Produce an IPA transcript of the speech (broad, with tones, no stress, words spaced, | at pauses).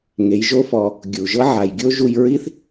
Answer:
ŋe˩˧jʒo˧˥fɔ˩˧ | ɡʲu˩ ʒɤ˥ ʕa˩jɡʲo˥ʒu˧j ɹi˥θ